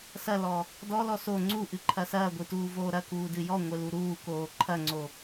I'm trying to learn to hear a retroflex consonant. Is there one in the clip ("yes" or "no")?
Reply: no